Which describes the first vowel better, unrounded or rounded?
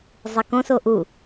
unrounded